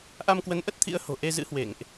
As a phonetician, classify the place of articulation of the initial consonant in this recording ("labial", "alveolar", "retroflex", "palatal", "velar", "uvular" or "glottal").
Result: glottal